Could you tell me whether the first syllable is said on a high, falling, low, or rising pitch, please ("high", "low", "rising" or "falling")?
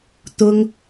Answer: high